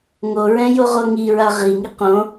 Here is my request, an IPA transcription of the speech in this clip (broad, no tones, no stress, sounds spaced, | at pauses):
ŋ o ɹ ɛ̃ j o ʁ o ŋ i ɹ a ʁ i ŋ i q õ